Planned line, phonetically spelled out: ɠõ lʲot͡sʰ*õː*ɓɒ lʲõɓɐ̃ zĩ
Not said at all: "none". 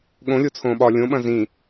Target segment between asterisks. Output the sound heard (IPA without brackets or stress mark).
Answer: õː